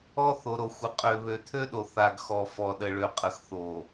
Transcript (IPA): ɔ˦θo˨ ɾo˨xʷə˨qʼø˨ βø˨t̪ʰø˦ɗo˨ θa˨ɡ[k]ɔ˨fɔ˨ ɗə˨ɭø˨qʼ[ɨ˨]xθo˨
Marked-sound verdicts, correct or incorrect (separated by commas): incorrect, incorrect